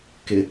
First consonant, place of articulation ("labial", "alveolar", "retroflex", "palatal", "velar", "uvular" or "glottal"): velar